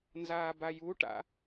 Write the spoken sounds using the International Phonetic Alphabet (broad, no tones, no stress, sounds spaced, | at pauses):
n z aː b a j u ʈ a̰